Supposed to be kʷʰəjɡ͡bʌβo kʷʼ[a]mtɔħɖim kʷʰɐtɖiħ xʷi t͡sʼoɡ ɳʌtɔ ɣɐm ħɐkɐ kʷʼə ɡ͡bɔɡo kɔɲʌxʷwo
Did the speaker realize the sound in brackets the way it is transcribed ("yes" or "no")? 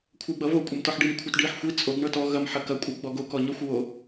no